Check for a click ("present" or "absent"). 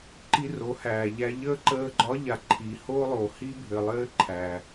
present